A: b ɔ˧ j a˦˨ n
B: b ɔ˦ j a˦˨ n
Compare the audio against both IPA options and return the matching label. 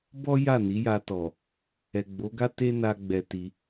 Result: B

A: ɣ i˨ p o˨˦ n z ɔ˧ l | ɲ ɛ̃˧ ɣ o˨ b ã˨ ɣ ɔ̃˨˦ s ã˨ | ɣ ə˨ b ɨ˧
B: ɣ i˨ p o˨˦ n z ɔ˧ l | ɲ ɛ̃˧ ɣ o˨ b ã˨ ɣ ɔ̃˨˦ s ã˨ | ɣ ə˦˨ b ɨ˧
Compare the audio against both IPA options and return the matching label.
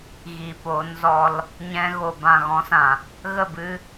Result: B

